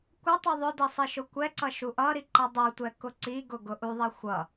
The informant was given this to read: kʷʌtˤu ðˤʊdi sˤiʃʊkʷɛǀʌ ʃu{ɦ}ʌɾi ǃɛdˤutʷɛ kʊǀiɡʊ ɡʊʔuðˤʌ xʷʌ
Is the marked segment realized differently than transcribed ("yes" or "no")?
yes